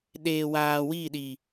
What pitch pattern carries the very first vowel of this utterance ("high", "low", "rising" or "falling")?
low